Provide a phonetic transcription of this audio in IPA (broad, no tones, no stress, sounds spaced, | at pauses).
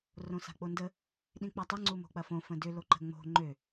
r õ s a̤ k͡p o n d ə | ɗ ĩ k͡p a tˤ ʊ ŋ͡ǀ u m o̤ k͡p ɐ f õ f ə̃ d ʏ l o ǃ ə̤ ŋ͡m o̤ ŋ͡ǃ ø